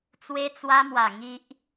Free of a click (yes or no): yes